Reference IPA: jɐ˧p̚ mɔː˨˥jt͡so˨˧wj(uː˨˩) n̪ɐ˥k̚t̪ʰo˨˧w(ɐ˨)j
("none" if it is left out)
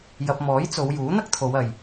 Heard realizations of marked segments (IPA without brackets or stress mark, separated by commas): uː˨˥, ɐ˨